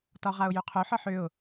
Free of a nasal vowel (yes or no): yes